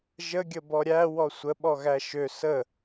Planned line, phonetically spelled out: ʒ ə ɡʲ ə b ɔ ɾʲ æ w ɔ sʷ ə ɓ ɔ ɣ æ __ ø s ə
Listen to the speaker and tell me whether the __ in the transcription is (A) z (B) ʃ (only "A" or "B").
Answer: B